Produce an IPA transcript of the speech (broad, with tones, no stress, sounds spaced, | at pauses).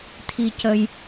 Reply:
t̪ʰ i˧ c ə˧ j